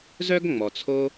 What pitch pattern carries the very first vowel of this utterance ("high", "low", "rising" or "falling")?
high